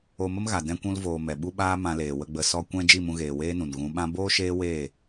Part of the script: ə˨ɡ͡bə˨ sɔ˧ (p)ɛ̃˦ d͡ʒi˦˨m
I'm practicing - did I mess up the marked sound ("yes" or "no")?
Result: yes